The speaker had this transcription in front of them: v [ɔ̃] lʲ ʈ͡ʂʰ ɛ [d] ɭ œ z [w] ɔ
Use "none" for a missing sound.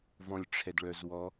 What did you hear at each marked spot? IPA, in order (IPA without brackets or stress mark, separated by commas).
ɔ̃, d, w